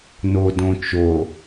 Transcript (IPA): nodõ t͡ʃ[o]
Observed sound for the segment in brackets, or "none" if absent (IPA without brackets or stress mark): o